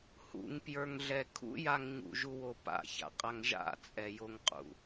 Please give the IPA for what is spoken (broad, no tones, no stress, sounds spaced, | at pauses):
h ṵ ŋ p j ə˞ ŋ ɮ ɛ kʰ ṵ j a ŋ ɲ ṵ ʒ u w o p a̰ ç a̰ qʼ a ŋ ʒ a̰ t͡sʼ ɛ j o ŋ qʼ ṵ